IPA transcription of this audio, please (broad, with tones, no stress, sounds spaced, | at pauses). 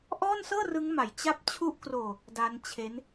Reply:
ʔ ɔː˥˩ n s ɤː˥˩ r ɯ˦˥ ŋ m a˨˩ j t͡ɕ a˦˥ p̚ t͡ɕʰ u˦˥ ʔ k r oː˧ | d a˦˥ n t͡ɕʰ e˦˥ n